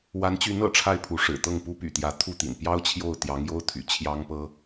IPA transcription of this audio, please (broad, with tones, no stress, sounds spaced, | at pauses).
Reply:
w a˧˥ n t͡ɕ y˧˥ n ɤ̰˨˩ ʈ͡ʂʰ a˥˩ ɪ̯ pʰ u˧˥ ʂ ɻ̩˨˩ t̪ ɤ˥˩ ŋ p u˥ p y̰˨˩ t̪ j ä˧˥ t̪ʰ u˥˩ t̪ ḭ˨˩ n p j ɑ˥ ʊ̯ t͡ɕʰ j o˥˩ ʊ̯ t̪ j ɑ˧˥ ŋ j o˥ ʊ̯ t̪ʰ y̰˨˩ t͡ɕʰ j ɑ˥ ŋ p ɤ˥